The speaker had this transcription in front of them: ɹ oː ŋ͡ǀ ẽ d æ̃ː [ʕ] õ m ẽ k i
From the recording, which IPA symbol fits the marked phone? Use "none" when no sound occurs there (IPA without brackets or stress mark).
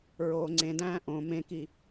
ʔ